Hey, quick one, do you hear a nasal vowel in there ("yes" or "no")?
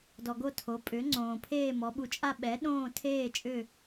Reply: yes